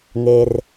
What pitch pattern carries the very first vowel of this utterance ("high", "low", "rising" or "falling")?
low